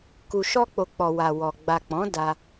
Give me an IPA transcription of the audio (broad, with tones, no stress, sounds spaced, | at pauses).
k u˨ ʃ ɔ˧ k͡p o˨ k͡p ɔ˨ w a˨ w ɔ˨ ɡ͡b a˨ k͡p ɔ̃˨˦ d a˧